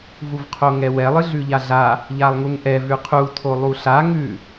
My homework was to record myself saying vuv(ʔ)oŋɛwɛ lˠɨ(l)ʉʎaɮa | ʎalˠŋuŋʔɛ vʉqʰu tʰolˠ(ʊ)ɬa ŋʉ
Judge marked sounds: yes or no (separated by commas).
no, no, no